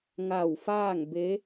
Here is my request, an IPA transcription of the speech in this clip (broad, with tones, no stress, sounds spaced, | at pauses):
ŋ a˧˩ w f aː˥˨ ŋ b e˧˥